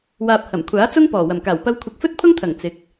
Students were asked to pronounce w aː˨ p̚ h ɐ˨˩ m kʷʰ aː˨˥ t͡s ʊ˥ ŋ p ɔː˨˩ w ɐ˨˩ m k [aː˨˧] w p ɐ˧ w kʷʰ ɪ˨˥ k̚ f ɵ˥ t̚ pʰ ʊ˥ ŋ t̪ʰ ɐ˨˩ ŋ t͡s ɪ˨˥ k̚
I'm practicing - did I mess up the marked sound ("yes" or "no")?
yes